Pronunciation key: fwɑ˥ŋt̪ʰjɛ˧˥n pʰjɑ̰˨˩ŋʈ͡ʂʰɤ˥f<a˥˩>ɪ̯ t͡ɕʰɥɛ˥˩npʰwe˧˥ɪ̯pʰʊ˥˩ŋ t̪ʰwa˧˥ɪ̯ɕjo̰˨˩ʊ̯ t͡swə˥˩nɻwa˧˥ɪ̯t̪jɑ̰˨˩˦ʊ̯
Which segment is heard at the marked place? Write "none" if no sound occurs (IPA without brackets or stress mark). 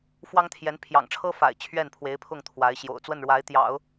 a̰˨˩